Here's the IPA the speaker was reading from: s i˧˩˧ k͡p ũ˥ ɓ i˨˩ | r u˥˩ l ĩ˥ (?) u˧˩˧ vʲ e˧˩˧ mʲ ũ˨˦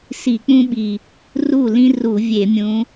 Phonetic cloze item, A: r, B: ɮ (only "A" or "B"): A